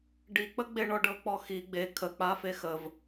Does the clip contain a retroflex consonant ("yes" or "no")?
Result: yes